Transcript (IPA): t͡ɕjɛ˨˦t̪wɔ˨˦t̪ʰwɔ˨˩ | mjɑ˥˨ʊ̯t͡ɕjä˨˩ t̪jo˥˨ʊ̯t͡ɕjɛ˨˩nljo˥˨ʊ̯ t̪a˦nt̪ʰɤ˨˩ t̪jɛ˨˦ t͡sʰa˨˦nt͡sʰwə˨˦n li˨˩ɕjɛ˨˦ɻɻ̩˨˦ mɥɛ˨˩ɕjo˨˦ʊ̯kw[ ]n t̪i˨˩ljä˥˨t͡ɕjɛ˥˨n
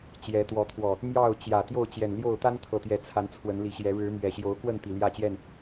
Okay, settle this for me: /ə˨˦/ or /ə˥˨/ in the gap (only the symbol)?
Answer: ə˥˨